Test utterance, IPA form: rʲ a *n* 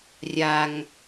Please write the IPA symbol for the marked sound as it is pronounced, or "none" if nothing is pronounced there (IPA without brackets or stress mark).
ŋ